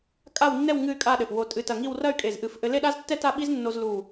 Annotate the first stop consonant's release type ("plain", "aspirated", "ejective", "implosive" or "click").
ejective